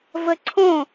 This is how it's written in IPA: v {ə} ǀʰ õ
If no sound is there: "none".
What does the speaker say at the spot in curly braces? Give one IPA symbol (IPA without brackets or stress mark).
ə